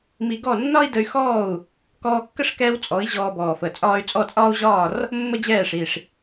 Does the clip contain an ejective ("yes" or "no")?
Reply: yes